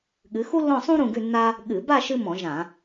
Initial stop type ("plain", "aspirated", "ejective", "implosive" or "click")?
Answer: implosive